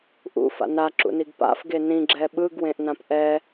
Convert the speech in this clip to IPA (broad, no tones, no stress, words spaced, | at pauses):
ʔṵfa̰ naǁṵniɡ pa̰fɡe nĩɡ͡ǁɛ ɓɯɡwẽʔnãp ʔɛ